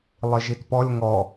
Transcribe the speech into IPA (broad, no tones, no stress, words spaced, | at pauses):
lˠiʒitpɔlʲ ŋɔ